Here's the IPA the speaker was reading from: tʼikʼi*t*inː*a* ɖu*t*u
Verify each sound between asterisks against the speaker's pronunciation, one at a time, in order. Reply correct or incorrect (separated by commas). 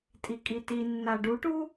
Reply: correct, correct, incorrect